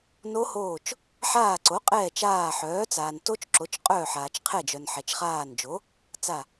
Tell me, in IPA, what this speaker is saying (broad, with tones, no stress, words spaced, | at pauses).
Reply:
no˦˥hoː˦˨t͡ʃ | ħaː˦˨ǀo˨˥qʼɛː˦˨ t͡ʃaː˦˨ħœː˨˥ t͡saː˨nto˦˥t͡ʃǁo˨˥t͡ʃ qʼœː˦˨ħaː˨t͡ʃqʰɛ˦˨d͡ʒœ˨n ħɛ˨t͡ʃχaː˦˨nd͡ʒo˨˥ | t͡sa˦˨